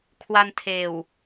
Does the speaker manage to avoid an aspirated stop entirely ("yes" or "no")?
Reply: no